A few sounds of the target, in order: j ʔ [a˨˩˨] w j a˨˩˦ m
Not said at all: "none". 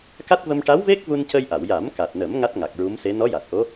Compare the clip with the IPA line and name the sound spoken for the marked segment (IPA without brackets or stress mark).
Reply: a˨˩˨